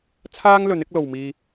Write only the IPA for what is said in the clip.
t͡sʰaː˥ŋlɵ˨˥n ɪ˥k̚lo˨wmiː˧

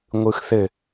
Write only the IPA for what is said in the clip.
ŋʷɯxθɘ

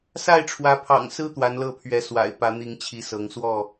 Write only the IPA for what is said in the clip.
sa˥˨ɪ̯ʈ͡ʂʰwä˨˦pʰɑ̰˨˩ŋ sɹ̩˦ t̪wa˨˦nlɤ˥˨pʰɥɛ˨˦swa̰˨˩ɪ̯ pä˨˦ n̪i˨˦ŋ t͡ɕʰi˨˦sɤ˨˦ŋswɔ˥˨

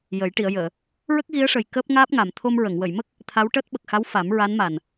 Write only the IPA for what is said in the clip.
jə˨˩˦j ʈi˨˩˨ə̯jəː˨˩˨ | ɹə˦˥k̚ɣi˧˥ə̯ʂə˨˩j kəː˦˥p̚ ŋaː˦˥p̚ŋa˨˩m t̪ʰo˧mɹə˨˩˨ŋ wə˨˩˨jmə˦˥k̚ | t̪ʰa˧˥wʈəː˦˥t̚ ɓə˨˩k̚xa˧˥w fa˨˩˦m ɹa˧˥nma˨˩n

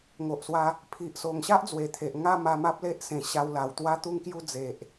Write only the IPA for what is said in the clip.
ŋo˨ʔswa˧ | pʰi˨ʔso˨˩ŋɕa˦ʔ d͡zwe˨˩t̪ʰe˨ʔ ŋa˥˧ma˧ ma˦p̚le˦ʔsẽ˨˩ ɕa˧wla˨˩wt̪wa˦ t̪u˦ŋkju˦ d͡ze˨ʔ

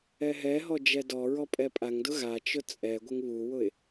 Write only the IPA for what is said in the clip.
ɛɦɛɦɔ d͡ʒɛdɔɹɔ pʼɛpʼaŋdʊ ɣat͡ʃʊ t͡sʼɛɡʷɪŋ βuwʊɪ̯

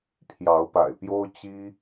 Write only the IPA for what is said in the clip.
pʰjɑ˨˦ʊ̯pa̰˨˩ɪ̯pjo˦ʊ̯ t͡ɕi˦

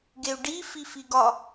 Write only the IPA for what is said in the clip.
ɡeu̯ɖi fifiɡɒ

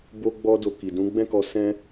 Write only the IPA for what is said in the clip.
bo˦ɡ͡bɔ˦do˧ ki˨dũ˨˦ɡ͡bɛ̃˦kɔ˧ sɛ̃˦

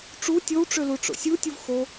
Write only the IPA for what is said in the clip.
ʈ͡ʂu tʲowʈ͡ʂølu ʈ͡ʂo̰sʲutʲuv xo

